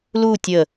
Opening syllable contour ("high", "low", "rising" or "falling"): falling